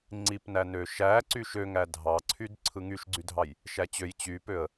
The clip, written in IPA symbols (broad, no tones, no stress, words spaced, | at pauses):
ŋ͡ǀipnæ nøʃæ ǀyʃøŋæ dʱɑǀʰyd ǀʰɯŋyʃɡ͡ǀydʱɑj | ʃæt͡ɕøj t͡ɕypøə̯